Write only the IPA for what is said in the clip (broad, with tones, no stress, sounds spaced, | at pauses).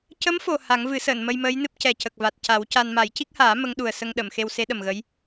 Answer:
c ə˧˥ m f o˨˩ h a˨˩˦ ŋ v ɨ˨˩˦ s əː˨˩˨ n m ə˧ j m əː˧˥ j n ɨ˦˥ p̚ c ɛ˨˩ c ə˨˩ k̚ v a˨˩ t̚ c a˨˩˦ w c a˧ n m a˨˩˦ j c i˦˥ k̚ h aː˨˩˦ m ə˧˥ ŋ ɗ u˨˩ ə̯ s ə˧ ŋ ɗ ə˨˩˨ m x e˧ w s e˧˥ ɗ ə˨˩ m ɣ ə˧˥ j